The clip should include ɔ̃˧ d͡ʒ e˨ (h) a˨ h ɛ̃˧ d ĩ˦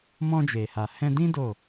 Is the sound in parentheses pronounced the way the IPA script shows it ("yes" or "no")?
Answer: yes